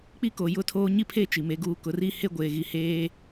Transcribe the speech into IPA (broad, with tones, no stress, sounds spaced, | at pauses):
k͡p i˦ k o˨ j ʊ˦ tʰ oː˦ ɲ i˦ pʰ e˦ t͡ʃ i˨ m e˦ ɡ uː˦ k ʊ˨˦ r i˦ h e˦ ɡʷ eː˨ ɣ i˨ h eː˦